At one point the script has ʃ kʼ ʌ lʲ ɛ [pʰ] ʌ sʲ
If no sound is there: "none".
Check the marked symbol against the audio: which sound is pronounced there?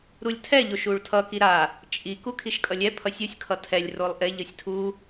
pʰ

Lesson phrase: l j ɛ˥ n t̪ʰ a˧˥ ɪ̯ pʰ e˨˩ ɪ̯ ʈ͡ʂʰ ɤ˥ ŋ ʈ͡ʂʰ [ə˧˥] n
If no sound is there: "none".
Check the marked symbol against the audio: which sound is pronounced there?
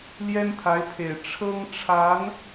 a˧˥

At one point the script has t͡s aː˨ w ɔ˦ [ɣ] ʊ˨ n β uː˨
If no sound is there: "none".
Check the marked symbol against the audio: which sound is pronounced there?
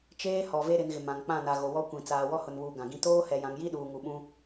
h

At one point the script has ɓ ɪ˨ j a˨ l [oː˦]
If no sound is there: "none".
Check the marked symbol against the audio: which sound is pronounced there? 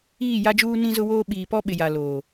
oː˨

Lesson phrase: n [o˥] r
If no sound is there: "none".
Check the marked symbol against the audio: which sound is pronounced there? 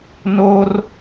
o˥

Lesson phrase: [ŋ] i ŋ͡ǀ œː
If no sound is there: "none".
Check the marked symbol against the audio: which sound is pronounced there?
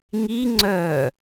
ŋ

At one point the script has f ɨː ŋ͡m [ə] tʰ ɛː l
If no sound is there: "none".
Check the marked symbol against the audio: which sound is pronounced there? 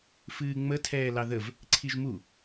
ə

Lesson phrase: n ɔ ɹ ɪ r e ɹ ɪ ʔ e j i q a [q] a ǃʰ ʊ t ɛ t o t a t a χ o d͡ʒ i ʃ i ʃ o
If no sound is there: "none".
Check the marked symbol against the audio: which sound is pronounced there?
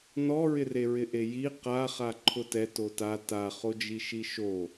χ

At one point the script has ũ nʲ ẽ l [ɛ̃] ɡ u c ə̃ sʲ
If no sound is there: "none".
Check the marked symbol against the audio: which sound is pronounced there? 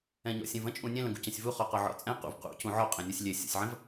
ə̃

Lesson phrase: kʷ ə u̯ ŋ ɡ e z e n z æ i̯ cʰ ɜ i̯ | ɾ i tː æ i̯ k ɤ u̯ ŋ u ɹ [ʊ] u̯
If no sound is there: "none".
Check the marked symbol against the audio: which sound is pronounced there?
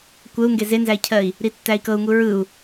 ɯ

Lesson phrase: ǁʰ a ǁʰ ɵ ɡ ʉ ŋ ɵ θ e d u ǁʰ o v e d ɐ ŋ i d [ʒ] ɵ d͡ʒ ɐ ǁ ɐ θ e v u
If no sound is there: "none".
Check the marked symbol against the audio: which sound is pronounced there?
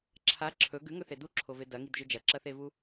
ʒ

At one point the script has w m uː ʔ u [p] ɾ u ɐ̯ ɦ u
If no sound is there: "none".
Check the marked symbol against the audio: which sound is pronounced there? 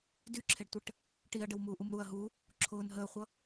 m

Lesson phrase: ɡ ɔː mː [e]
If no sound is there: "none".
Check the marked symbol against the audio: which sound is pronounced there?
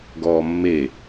e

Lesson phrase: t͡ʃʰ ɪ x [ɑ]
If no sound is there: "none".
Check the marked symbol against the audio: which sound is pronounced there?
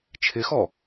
ɔ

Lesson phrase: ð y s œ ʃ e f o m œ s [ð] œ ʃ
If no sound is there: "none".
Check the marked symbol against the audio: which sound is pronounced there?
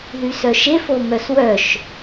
w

